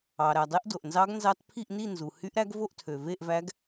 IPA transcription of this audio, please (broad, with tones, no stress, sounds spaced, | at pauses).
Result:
ɑ˩ ɾ æ˩ dˤ e˧˥ ʔ d o˩ ʔ n z ɑ˧˥ ɡ n z ɑ˧˥ t pʰ i˥˨ ʔ n i˥˨ n z u˩ h y˧˥ ʔ ɾ æ˧˥ ɡ v o˥˨ ʔ tʰ ø˩ v e˥˨ ʔ v æ˧˥ ɡ